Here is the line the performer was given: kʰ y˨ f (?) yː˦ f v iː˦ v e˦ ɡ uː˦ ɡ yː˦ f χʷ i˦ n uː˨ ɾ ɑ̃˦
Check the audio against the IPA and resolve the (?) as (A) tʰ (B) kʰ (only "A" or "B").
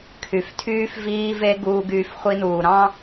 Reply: A